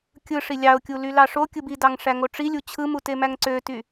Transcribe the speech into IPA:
kʲɯʂi lʲɑʊ̯kʲu lylɑʂokʲɯb idɑŋ ʂæŋoʈ͡ʂilʲu t͡ɕʰɯmu temæŋǀøty

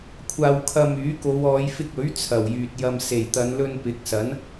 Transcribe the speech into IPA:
kʷʰaː˧wkʰɐ˧myː˨˥ ko˨˧wɔː˨˧jfɪ˧k̚ɵ˨˥ɥ t͡sʰɐ˨˩wjyː˨t̚ jɐ˨mse˨˩jt̪ɐ˨˧n lɵ˧npɪ˨˥k̚sɐ˨˥n

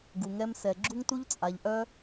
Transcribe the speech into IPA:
ɡu˧ŋɛ˦msɛ˧ ɡ͡ǁu˦ŋtu˦ʎt͡sʼa˧ʎʔœ˦

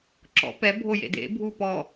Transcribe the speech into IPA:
ǁɔ̰ pɛ bʱojḛdḛ bʱupɔ

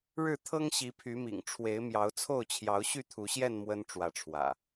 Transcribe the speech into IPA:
ɻɻ̩˥˨t̪ʰɤ˦ŋ ɕi˨˦pʰy˨˦mḭ˨˩ŋʈ͡ʂʰwe˨˦ɪ̯ mjɑ˨˦ʊ̯t͡sʰo˥˨ʊ̯t͡ɕʰjɑ˨˦ʊ̯ ɕy˥˨t̪ʰu˨˦ɕjɛ˥˨n mwə˦n ʈ͡ʂwä˨˦ʈ͡ʂʰwä̰˨˩

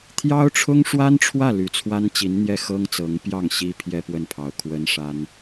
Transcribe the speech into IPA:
t̪ʰjɑ˥ʊ̯ʈ͡ʂʰʊ˥ŋʂwa˥nʈ͡ʂʰwä˥˩ ly˧˥t͡sʰwa˥nt͡ɕi˧˥nn̪jɛ˥˩ xɤ˥ŋt͡sɤ˧˥ŋpjɑ˥˩ŋ ɕi˥pʰjɛ˥ pwə˥˩npʰɑ˧˥ʊ̯ kʰwə˥nʂa˥n

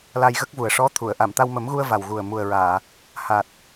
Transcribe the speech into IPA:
la˧jɣə˦˥k̚vu˨˩ə̯ ʂɔ˧˥t̪ʰu˨˩˨ə̯ ʔa˨˩˨mt̪a˧wmə˨˩˦mɣu˧ə̯ va˨˩wɣu˨˩ə̯ mu˨˩ə̯ɹaː˨˩˨ | ha˨˩t̚

